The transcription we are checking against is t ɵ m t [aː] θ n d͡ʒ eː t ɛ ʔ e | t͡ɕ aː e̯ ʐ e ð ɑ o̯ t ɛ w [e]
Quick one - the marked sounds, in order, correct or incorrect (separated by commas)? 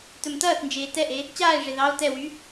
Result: incorrect, incorrect